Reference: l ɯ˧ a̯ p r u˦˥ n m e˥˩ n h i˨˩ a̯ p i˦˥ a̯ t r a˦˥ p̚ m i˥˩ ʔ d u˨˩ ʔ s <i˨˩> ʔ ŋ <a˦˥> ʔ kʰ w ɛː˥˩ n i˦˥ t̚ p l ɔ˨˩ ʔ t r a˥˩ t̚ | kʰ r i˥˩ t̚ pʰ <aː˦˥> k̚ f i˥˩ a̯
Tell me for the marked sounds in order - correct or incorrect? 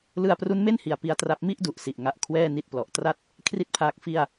correct, correct, correct

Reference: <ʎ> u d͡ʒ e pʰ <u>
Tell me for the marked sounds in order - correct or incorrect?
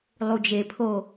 incorrect: lˠ, incorrect: o

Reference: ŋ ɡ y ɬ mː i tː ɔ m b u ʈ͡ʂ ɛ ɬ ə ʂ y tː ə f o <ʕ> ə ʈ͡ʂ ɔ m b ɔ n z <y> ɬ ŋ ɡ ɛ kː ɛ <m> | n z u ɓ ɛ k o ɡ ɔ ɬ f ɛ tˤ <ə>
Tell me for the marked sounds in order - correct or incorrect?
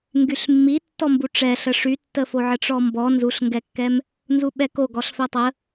correct, incorrect: u, correct, correct

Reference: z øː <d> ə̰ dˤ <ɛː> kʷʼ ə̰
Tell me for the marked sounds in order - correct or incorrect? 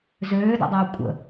correct, correct

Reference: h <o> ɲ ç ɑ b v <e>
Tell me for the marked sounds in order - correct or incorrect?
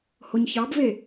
correct, correct

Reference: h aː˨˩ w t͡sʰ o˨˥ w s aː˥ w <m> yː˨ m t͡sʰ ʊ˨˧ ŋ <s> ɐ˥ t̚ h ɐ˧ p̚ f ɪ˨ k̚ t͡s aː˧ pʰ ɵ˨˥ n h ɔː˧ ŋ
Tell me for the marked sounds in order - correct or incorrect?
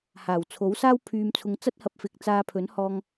incorrect: pʰ, incorrect: t͡s

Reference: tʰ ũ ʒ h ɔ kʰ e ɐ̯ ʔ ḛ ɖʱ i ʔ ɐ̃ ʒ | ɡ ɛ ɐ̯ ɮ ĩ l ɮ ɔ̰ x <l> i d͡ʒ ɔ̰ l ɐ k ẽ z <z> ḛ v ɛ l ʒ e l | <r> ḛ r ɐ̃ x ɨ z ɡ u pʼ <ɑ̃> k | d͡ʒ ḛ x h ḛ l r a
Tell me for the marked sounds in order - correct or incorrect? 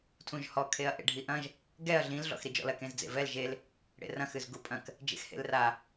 incorrect: ɾ, incorrect: d͡z, incorrect: ɽ, incorrect: ɐ̃

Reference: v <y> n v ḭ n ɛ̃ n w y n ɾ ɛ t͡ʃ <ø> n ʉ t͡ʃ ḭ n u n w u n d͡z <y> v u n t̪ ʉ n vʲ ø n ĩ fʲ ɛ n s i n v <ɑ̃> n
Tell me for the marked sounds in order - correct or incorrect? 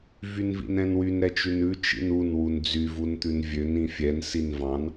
correct, incorrect: ʉ, correct, correct

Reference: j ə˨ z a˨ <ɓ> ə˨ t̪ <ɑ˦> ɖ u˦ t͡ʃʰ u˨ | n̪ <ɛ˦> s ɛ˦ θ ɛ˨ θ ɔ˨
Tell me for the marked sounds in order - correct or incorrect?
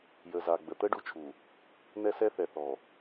incorrect: ɡ͡b, incorrect: ə˦, correct

